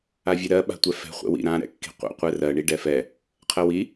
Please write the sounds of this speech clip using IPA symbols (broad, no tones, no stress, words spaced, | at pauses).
avʲɛɾɜ ɓa̤tʷɛfɛ̤ χʷɛ̰wḭ ɾã ɾɛ̰kːi̤qʷɛ̰ qʷɛrɜ ɳiɖɛfɛ | qʰɜwi